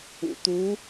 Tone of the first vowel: low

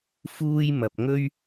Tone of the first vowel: high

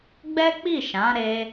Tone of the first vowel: high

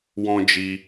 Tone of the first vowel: high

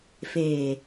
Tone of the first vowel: low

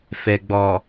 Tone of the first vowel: low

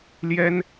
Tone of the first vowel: high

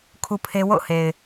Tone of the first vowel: high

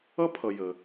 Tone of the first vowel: high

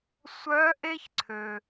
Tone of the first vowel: rising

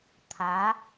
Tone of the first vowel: rising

